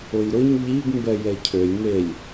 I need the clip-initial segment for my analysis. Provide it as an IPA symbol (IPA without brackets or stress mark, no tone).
ʊ